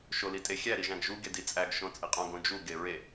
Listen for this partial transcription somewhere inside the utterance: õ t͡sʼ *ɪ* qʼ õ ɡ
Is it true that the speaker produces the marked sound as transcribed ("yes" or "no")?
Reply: no